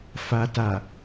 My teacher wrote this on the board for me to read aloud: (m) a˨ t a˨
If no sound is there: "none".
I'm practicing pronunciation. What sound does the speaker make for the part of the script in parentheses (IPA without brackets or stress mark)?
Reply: f